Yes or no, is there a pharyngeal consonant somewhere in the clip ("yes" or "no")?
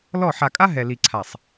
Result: yes